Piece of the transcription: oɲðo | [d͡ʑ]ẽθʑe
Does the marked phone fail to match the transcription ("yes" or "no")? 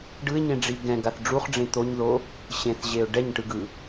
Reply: yes